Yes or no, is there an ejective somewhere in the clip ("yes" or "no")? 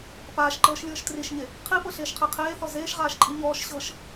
yes